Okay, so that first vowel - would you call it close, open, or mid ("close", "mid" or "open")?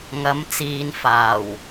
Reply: open